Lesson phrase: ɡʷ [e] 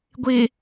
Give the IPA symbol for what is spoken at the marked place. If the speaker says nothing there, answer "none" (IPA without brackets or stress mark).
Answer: e